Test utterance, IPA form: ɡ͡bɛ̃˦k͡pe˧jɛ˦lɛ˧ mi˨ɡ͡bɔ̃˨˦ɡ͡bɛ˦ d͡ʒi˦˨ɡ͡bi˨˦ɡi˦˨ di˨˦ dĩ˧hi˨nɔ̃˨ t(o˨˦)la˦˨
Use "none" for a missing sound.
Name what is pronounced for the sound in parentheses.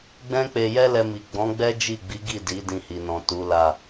u˨˦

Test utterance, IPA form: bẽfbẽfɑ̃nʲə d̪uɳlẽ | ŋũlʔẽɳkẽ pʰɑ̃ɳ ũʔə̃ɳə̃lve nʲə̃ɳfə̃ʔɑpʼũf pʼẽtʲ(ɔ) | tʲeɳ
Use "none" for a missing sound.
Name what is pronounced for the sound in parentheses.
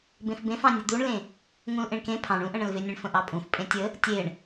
ə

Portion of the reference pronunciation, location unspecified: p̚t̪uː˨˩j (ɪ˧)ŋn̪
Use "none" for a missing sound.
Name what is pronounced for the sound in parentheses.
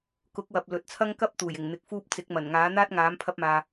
ɪ˨˩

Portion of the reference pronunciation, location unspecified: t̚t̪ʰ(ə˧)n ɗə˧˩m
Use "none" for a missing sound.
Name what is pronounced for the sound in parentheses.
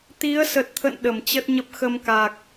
ə̰˧˨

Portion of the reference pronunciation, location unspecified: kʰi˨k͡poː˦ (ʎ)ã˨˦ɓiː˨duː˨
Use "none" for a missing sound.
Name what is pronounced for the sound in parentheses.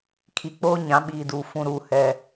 ɲ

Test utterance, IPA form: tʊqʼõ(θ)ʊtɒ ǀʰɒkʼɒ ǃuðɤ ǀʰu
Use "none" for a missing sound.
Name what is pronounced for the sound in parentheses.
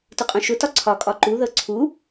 ʃ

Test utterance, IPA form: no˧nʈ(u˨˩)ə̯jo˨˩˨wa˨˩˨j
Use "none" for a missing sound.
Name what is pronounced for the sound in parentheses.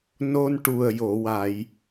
u˨˩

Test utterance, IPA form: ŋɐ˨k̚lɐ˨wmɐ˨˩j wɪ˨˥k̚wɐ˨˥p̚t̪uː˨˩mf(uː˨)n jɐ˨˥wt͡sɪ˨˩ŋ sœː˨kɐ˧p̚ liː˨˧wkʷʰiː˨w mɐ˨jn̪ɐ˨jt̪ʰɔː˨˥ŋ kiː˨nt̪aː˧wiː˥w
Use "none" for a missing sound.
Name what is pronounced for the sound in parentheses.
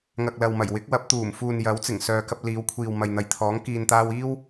uː˨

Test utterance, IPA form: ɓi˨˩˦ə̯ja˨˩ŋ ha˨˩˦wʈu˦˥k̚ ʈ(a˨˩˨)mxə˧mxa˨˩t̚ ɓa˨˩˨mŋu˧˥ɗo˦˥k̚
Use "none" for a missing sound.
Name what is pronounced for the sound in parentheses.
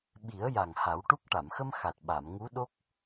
a˨˩˨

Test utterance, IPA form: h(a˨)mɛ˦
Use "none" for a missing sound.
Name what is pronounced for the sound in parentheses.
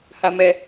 a˦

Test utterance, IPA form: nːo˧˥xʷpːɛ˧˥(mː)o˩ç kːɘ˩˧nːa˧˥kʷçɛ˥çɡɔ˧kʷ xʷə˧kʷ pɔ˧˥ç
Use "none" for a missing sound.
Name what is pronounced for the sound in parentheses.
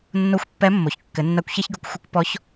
mː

